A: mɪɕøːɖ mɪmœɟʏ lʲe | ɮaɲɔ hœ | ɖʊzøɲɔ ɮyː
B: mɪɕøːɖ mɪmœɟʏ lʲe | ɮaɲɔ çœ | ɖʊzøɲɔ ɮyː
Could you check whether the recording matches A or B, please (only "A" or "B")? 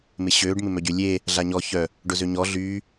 B